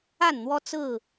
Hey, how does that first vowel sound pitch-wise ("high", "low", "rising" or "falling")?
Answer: falling